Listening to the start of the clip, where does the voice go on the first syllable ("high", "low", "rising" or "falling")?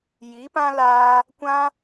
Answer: rising